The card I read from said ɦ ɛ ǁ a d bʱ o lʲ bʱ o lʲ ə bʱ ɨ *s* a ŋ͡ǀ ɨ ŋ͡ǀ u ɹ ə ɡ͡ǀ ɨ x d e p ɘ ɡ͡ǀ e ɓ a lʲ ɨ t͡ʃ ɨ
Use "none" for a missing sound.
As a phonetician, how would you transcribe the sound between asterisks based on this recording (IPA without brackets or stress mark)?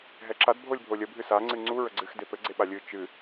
s